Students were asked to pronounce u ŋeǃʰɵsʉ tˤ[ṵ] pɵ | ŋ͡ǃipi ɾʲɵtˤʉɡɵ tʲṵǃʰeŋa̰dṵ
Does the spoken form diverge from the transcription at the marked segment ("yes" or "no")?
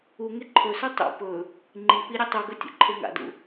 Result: no